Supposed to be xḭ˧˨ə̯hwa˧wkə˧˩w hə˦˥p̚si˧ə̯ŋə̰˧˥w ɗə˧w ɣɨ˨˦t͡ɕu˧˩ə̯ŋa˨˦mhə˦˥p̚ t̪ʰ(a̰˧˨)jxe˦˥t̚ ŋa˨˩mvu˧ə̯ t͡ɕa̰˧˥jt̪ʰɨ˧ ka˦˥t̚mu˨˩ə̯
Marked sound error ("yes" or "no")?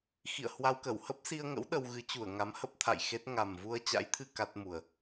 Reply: no